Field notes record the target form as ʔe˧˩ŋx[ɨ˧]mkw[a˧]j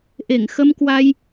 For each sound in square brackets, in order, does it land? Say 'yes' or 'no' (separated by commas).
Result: no, yes